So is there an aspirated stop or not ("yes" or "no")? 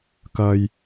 no